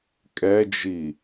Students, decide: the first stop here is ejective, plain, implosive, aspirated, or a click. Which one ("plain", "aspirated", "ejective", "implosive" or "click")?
ejective